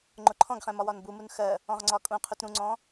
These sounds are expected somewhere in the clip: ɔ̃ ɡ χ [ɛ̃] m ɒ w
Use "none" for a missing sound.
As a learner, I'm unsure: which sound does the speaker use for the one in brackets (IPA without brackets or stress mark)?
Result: ɛ̃